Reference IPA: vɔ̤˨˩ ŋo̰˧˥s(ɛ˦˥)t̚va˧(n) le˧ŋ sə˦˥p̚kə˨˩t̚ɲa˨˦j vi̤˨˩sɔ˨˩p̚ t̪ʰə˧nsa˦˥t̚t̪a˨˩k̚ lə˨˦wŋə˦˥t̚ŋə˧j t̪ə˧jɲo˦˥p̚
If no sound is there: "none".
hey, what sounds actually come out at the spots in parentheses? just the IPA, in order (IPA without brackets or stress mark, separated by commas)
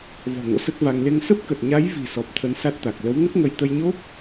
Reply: ə˦˥, ŋ